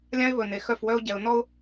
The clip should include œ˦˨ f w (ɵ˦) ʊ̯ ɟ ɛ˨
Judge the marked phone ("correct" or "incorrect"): incorrect